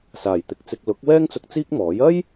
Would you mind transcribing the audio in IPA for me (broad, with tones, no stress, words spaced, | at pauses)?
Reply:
saː˨˩jt̪ɪ˨k̚t͡sɪ˧k̚ lʊ˨˥k̚ wɛː˥ŋt͡sʊ˧k̚ t͡siː˥k̚ mɔː˨˥j ɐ˥j